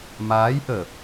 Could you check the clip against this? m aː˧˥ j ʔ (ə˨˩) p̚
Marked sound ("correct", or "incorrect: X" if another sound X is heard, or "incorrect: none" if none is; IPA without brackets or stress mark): incorrect: əː˨˩